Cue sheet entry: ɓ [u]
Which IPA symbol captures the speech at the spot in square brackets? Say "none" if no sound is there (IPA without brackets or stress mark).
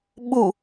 u